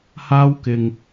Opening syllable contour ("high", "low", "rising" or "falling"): high